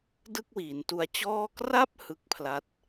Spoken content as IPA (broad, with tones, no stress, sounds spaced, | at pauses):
d ɯ˥˩ k̚ w iː˩˦ n t u˧ a̯ t͡ɕ ɔː˥˩ k r a˥˩ p̚ h ɯ˦˥ k̚ pʰ l a˦˥ t̚